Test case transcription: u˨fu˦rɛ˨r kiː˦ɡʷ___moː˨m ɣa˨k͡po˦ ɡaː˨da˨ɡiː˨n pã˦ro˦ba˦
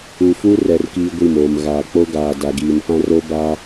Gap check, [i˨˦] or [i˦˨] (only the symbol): i˦˨